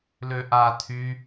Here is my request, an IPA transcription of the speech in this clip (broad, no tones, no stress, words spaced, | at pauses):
løʔa tʰy